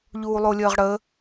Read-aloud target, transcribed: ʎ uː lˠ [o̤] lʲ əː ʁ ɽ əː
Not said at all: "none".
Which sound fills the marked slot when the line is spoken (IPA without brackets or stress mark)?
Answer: o